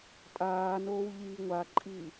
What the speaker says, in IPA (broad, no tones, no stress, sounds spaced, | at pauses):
tʼ aː n oː w ʎ iː ŋʷ a ǃʼ iː